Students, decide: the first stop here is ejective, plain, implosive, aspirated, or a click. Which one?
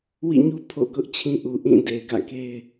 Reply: aspirated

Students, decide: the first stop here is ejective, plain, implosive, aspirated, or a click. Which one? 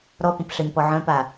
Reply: plain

